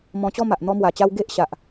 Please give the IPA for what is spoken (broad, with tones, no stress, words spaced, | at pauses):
mɔ̃˧t͡ɕɔ˦ma˨ʔ n̪ɔ˧mwa˨˩t͡ɕa˧w ɡe˦ʔ ɕa˨ʔ